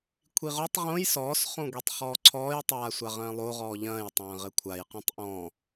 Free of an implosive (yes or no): yes